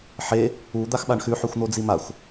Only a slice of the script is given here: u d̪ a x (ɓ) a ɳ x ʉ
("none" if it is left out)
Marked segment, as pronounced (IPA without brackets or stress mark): ɓ